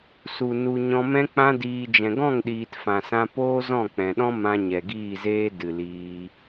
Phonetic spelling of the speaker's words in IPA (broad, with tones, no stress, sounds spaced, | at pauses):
s u˨ n u˨ ɲ ɔ̃˧ m ɛ̃˦ k͡p ã˦ d iː˧ d͡ʒ ɛ̃˨ ɡ ɔ̃˦˨ ŋ ɗ iː˨ t f ã˨ s ã˧ p oː˦ z ɔ̃˦˨ k͡p ɛ̃˨ ɗ ɔ̃˦ m ã˧ ɲ ɛ˨ ɡ iː˦˨ z eː˦ d ɨ˨ l iː˧